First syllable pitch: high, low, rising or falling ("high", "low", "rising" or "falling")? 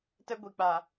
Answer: high